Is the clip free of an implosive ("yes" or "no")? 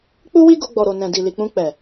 yes